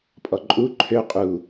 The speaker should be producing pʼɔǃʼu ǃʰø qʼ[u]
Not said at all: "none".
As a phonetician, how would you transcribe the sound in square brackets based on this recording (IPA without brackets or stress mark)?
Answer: u